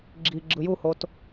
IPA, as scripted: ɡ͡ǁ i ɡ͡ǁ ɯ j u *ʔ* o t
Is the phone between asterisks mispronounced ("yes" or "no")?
yes